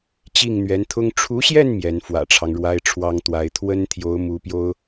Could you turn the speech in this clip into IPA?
t͡ɕ i˥˩ ŋ n̪ ɥ ɛ˧˥ n t̪ʰ ʊ˥ ŋ ʈ͡ʂʰ u˧˥ ɕ j ɛ˥˩ n m j ɛ˧˥ n f w ä̰˨˩ ʈ͡ʂʰ ɑ˦ ŋ ɻ w a˥ ɪ̯ ʈ͡ʂʰ w ɑ˥ ŋ t̪ w a˧˥ ɪ̯ t̪ʰ w ə˥ n t̪ʰ j o˧˥ ʊ̯ m u˧˥ p j o˥ ʊ̯

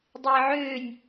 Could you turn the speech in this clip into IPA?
dˤ eː ʕ øː nʲ

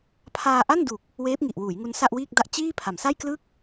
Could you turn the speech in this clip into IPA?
pʰ aː˧ ʔ a˥˩ n d u˨˩ k̚ | w eː˦˥ p̚ ŋ i˨˩ ʔ w uː˩˦ j ŋ u˧ n s a˥˩ ʔ w iː˥˩ k̚ d a˥˩ ʔ t͡ɕ iː˥˩ pʰ a˩˦ m s a˥˩ j k l ɯ˥˩ k̚

